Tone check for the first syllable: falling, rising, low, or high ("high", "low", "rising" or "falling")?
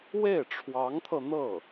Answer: falling